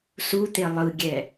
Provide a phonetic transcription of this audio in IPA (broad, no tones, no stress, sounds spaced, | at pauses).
s u t̪ e lˠ ɯ ɡʲ ɛ